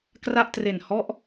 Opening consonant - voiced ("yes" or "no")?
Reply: no